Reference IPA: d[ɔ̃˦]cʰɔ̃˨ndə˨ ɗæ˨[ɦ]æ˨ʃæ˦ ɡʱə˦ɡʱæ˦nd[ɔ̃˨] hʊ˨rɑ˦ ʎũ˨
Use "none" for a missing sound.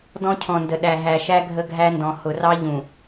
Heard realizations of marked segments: ɔ̃˦, ɦ, ɔ̃˨

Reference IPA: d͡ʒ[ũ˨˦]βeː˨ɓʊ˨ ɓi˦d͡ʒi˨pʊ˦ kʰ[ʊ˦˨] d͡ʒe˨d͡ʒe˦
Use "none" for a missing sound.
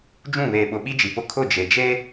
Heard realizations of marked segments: ũ˦˨, ʊ˦˨

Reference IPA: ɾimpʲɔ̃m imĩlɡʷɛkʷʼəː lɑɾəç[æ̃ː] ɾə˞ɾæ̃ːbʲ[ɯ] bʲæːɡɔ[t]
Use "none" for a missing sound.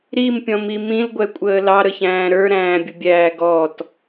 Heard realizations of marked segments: æ̃ː, ʊ, t

